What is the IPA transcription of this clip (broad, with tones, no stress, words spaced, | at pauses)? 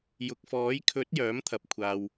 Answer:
jʊ˨k̚fɔː˨˥jkʰɵ˨˥t̚ jœː˨˥mt̪ʰɐ˨p̚kʷʰaː˨w